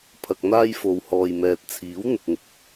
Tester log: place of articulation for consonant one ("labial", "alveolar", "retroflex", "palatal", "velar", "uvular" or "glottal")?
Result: labial